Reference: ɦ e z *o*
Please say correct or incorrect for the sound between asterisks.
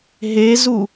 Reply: incorrect